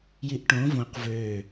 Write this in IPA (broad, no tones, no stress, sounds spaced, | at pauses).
j i ʔ ʈ õ v õ q v ø